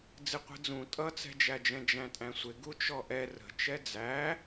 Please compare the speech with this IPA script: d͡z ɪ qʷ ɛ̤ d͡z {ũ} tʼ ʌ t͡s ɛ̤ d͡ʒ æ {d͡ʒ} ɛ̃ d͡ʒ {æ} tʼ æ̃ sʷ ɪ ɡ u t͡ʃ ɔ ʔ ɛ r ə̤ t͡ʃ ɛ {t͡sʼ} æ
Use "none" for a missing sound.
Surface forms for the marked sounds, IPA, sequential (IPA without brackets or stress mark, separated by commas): ũ, d͡ʒ, æ̃, d͡z